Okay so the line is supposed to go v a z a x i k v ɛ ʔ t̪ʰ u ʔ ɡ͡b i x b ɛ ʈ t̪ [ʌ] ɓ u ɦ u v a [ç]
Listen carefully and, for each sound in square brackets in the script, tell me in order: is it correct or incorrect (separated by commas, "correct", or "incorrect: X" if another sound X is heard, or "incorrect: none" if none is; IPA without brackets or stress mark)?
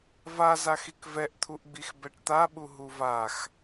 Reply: incorrect: a, incorrect: x